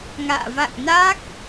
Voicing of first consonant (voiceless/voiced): voiced